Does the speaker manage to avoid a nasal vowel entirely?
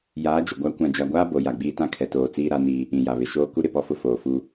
no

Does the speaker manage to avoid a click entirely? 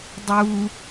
yes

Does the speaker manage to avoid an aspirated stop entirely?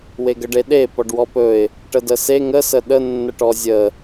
yes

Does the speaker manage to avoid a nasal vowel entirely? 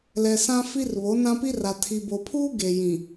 no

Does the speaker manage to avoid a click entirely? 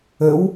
yes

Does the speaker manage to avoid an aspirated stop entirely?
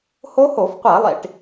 yes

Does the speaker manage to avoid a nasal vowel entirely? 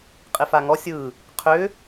yes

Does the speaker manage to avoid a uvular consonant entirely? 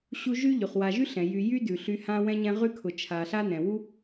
no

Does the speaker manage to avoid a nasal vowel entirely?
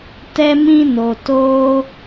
no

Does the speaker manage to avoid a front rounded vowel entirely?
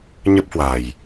yes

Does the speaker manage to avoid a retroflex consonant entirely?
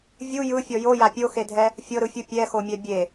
yes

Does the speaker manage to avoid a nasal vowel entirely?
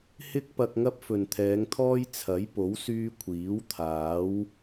yes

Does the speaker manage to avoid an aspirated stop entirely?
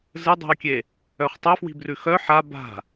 yes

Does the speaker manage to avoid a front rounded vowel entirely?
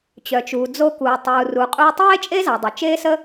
no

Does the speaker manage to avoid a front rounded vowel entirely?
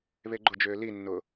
no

